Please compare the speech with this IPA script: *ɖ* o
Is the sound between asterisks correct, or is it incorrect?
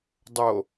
incorrect